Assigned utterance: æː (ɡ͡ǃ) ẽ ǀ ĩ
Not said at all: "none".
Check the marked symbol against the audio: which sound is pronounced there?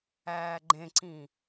ɡ͡ǃ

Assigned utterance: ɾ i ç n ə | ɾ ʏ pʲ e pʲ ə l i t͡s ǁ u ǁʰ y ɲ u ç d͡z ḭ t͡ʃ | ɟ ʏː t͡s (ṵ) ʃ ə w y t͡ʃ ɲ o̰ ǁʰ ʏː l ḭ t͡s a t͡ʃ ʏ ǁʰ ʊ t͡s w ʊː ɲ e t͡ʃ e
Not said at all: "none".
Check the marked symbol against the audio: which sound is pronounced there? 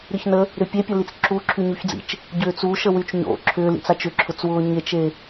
u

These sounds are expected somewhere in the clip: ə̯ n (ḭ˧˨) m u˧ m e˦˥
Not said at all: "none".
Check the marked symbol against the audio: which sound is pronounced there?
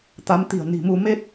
i̤˨˩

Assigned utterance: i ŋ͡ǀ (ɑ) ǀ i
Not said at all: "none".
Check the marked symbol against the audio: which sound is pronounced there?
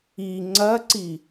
ɐ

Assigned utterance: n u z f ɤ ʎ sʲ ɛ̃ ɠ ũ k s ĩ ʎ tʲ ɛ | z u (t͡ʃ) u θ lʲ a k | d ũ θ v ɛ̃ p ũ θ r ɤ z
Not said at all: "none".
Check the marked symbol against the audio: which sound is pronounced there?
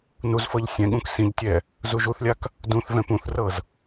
ʒ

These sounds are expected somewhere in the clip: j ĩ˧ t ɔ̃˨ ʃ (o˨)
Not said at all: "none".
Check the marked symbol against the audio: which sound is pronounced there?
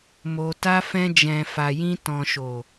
o˨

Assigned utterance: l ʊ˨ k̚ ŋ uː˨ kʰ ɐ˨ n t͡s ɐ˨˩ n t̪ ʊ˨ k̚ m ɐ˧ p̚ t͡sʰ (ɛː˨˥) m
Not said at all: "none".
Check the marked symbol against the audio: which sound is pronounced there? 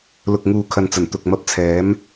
ɛː˨˥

